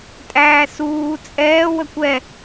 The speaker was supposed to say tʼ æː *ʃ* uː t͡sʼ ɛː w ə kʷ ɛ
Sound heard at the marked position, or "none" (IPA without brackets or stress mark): s